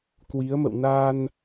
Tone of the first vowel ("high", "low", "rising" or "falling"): rising